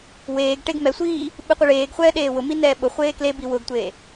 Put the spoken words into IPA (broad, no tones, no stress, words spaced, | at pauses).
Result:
weːɡ ʈeɡmɛsʷiː | ɓɨqʷeɭeːɡχʷɛː ɗeːwʊmi nɛːɓʊχʷeː klebi wʊɡtʷeː